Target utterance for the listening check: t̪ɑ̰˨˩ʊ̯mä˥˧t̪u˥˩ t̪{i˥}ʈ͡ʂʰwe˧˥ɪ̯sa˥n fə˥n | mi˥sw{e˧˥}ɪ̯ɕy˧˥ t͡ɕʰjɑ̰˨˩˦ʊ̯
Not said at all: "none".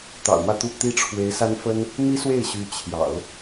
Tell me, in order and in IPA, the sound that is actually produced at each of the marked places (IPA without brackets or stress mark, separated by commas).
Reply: i˥, e˥˩